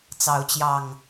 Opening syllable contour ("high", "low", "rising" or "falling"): rising